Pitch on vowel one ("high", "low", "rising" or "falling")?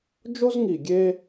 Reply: high